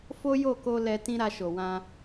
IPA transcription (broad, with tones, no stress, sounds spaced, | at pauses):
f o˦ j o˦˨ k o˧ l ɛ˧ t ĩ˦ ɾ a˧ ʃ o˨ w ã˧